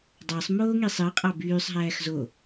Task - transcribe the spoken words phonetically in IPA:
dˤ ɑ sˤ m oː ŋ i sˤ ɯ qʼ ɑ b yː sˤ ɦ æː x z o

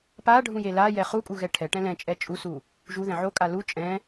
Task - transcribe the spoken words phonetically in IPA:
p a ɖʱ ũ j e l a j ɛ χ u kʼ u ɣ ɛ ʈʰ ɛ ʈ ɛ̃ l ɛ̃ t͡ʃʼ ɛ t͡ʃʼ u s u | ʒ u ð ɛ̃ ʕ o kʼ a l u t͡ʃʼ ɛ̃

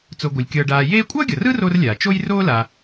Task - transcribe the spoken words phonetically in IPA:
t͡s o˨ ɡʷ ɯ˩ lʲ kʲ ʌː˨ ɖ aː˨ j eː˥ kʷʼ ʌː˥ ɡʲ ʌ˩ r ɯ˥ r o˥ r lʲ aː˩ t͡ʃ o˥ j r oː˥ l a˨

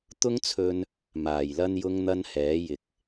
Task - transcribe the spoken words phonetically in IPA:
t̪ ʊ˥ ŋ t͡sʰ ɵ˧ n | m aː˨˩ j l ɐ˥ n j ʊ˥ ŋ n̪ ɐ˥ n h ɛː˨˥ j ɪ˨ k̚

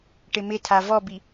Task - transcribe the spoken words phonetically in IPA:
ʈ ɪ m ɪ tʰ a v ɔ b i

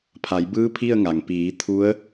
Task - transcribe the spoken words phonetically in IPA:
pʰ a˩˧ j b ɯː˧˥ pʰ i˥˨ ə̯ ŋ a˩ ŋ p iː˩˧ t̪ʰ u˧˥ ə̯

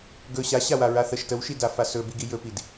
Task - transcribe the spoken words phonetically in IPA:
ɡ ɵ ɕ a ɕ a w a ɹ a θ ə ʃ t ə w ʃ i d a f a s ɵ b i ɡ i j ɵ p i d

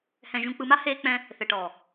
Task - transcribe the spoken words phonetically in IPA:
h ɛ̃˨ ʒ ũ˨ k͡p ɯ˨ m a˦ h eː˦ k͡p ɛ̃˦ | θ ɛ˨ ʈ ɔː˨

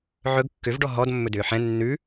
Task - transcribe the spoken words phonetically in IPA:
ʕ ɵ ɡ kː ʏ v ɖ ɔ ɦ ɔ d mː ɵ d ʏː ħ ɛ̃ nː ʉ

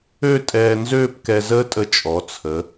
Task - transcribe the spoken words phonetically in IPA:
ø˥˧ tʼ ɛː˧ n z øː˥˧ p k ɛ˧ z əː˥ tʼ ə˧ t͡ʃʼ ɔ˩˧ t͡sʰ ə˩˧

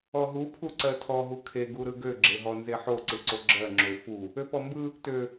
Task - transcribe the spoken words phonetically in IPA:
ɔ ɦ u pʰ u ǀ ɜ tʰ ɔ ɦ u kʰ e ɡ u ɾ ɯ ɡ ø ɡ͡ǁ e ɦ ɔ n z e ħ o ǀ ɯ ǀ o ɡ͡ǁ ɜ ŋ͡ǁ ø f u | ø p ɔ m b ɯ | t ø

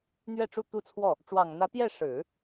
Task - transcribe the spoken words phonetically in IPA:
n̪ ɥ ɛ˥˧ ʈ͡ʂ u˥˧ t̪ u˥˧ t͡sʰ w ɔ˥˩ | ʈ͡ʂ w ɑ˨˩ ŋ n̪ ä˧˥ t̪ j ɛ˥˩ ʂ ɻ̩˨˩˦

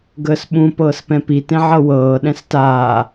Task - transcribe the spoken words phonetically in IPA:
ɡ əː s ɓ ũ p ɤː s p ɛ̃ p i t ẽ ʕ ɤ w ɤː ɗ ɛ̃ s t aː

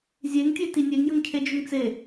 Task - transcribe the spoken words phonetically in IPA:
zʲ e ŋ tʲ e t i nʲ e ŋ j ə ŋ cʰ e d͡ʒ ʏ ŋ t͡s e

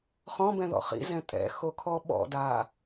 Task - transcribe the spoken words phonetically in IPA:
χ ɔ̃ b ɛ̃ ð ɔ̰ χ ḭ z ɛ̃ tʼ ɛ̰ x o kʰ ɔ ɓ ɔ̰ d a

